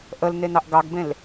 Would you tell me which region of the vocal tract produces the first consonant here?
throat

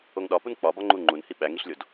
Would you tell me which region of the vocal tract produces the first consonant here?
velum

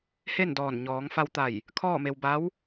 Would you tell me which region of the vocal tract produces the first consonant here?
throat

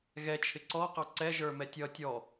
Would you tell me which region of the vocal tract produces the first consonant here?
velum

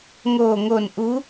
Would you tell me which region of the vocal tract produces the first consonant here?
velum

